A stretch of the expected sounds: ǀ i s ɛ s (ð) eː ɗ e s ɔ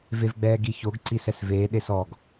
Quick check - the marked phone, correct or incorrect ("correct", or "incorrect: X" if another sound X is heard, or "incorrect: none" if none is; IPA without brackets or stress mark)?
incorrect: v